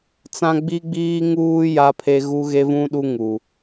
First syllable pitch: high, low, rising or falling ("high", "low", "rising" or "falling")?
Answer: high